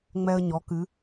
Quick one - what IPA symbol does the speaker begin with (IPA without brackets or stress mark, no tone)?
ŋ͡m